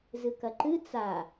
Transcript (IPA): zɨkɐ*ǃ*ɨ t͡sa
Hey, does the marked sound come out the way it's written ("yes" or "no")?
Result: yes